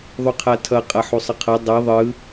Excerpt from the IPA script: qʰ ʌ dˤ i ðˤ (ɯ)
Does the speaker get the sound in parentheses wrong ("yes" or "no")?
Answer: no